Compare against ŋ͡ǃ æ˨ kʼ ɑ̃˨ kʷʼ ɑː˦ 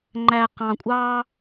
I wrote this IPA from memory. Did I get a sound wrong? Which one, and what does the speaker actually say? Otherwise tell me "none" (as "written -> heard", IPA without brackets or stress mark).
kʼ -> q